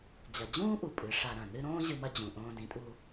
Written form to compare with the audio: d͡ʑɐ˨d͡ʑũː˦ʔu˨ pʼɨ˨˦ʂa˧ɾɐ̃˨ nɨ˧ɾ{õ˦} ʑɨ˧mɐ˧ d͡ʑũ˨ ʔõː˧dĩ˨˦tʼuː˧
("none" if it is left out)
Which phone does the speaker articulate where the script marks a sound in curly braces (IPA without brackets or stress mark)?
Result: õː˦